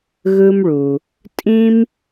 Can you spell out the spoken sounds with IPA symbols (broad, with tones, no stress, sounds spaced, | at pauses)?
ɣ ɯ˧ m ɭ u˩ | tʼ ĩ˧ m